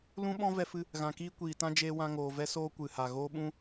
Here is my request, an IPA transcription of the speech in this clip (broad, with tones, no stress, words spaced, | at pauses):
lũ˦ɓɔ̃˦vɛ˧fɨ˧ | ɣã˨kiː˦kʷiː˨tã˦ d͡ʒeː˧wã˧ŋoː˨ vɛ˦soː˦kʷɨ˨ ha˨ɣoː˦ɓũ˦